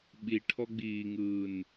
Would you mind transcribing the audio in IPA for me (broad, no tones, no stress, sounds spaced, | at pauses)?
ɓ i ʈʰ ɔ ɡ͡b iː ŋ ɯː n